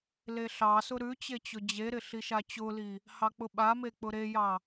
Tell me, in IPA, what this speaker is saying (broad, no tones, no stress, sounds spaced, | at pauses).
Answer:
l e ɬ ɑ s ʊ ɾ ʉ t͡ɕ e t͡ɕ ʊ d͡ʑ e ɾ ɪ ɬ i ʃ a t͡ɕ ʊ l i | h ɑ k͡p ʊ ɓ a m e k͡p ʊ ɾ e j ɑ